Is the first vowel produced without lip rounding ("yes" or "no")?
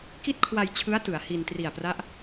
yes